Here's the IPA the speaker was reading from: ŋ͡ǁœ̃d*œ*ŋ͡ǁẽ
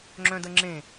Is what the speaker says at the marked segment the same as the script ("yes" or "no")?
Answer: no